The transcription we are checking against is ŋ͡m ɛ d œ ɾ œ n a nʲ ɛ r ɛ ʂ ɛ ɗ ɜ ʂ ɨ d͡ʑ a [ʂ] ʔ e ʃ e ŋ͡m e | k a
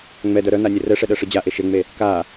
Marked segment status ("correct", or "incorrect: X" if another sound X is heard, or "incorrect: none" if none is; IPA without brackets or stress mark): incorrect: none